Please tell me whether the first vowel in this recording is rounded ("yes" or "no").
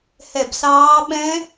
no